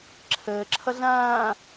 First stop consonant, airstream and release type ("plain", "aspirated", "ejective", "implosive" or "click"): click